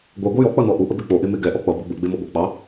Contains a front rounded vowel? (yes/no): no